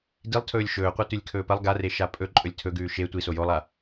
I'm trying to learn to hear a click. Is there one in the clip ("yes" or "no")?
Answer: yes